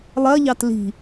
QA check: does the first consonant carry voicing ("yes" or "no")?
yes